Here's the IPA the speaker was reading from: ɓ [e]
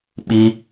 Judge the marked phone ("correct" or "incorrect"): incorrect